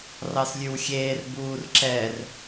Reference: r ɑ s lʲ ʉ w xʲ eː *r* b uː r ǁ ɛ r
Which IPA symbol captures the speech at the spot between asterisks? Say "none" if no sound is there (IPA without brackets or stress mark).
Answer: r